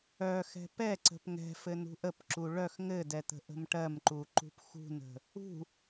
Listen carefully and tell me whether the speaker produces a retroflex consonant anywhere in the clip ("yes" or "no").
yes